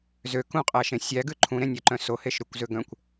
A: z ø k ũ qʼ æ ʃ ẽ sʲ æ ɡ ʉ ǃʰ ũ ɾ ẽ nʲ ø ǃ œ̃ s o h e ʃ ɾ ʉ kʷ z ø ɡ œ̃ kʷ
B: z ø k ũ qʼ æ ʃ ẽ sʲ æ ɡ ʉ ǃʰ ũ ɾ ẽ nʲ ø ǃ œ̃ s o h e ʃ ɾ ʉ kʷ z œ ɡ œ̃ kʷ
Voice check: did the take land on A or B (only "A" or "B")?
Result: A